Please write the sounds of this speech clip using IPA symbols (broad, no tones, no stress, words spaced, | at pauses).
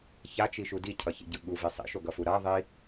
çat͡ʃiʃu dicʰʌçḭɟɯ ɠuvi sˤḭʃoɡʌfu ɾaðˤi